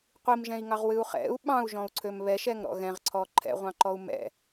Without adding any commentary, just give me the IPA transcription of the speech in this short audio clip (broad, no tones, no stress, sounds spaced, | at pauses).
qʷ i m ʒ ɛ̃ i̯ ŋ ɑ ʁ w ɨ u̯ χ ɛ̰ u̯ ɓ ɑ̃ u̯ ʒ ɔ̃ u̯ ǀʰ ø m β ɛ ʃ ɛ ŋ ɾ ɔ̰ ɣ ɛ̃ ʁ ǀʰ ɔ ǃʰ ɛ̰ ʁʷ ɑ̃ ǃ ɔ u̯ m ɛ̰